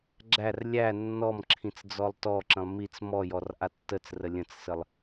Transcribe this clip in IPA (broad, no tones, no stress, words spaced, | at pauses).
ɡ͡ǁær lʲæ nːɔmǁʰĩt͡s d͡zɔlˠtɔǁə̃lˠ mit͡s mɔjɔr ʔatːət͡srə lʲə̃t͡ssəlˠ